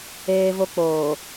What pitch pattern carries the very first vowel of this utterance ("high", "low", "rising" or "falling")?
high